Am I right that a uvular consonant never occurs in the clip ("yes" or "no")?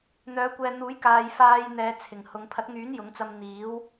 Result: yes